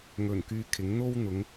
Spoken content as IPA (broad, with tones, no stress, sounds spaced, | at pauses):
ŋ ɵ˨˩ n k yː˨ kʰ ɪ˨˥ ŋ n̪ o˥ w n̪ ʊ˨˧ ŋ